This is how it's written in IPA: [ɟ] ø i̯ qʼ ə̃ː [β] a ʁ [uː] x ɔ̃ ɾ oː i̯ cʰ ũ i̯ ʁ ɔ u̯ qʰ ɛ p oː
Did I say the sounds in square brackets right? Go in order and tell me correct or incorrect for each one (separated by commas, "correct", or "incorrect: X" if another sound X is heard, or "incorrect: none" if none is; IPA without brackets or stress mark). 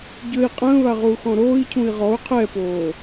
correct, correct, correct